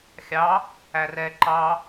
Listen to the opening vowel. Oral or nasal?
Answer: oral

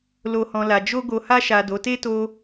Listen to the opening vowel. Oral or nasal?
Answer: oral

